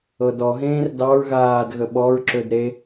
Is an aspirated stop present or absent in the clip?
absent